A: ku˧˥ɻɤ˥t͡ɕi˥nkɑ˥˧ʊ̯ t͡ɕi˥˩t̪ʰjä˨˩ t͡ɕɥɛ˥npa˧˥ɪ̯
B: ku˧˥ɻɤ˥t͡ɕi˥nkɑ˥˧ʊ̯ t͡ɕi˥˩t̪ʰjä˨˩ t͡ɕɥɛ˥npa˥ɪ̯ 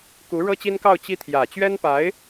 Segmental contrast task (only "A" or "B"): A